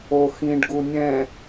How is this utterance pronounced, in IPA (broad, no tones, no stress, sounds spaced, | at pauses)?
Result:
o x ĩ ɖ ɡ u nʲ ɛ̃